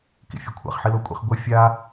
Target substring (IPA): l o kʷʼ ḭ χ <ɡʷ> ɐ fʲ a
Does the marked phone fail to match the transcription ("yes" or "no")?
no